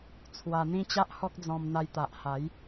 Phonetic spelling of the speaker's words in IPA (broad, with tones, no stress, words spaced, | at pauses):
t͡sʰwa˧n̪ĩ˦t͡ɕa˦ʔhɔ˦k̚ d͡zɔ̃˧mn̪a˧jt̪a˨ʔha˨˦j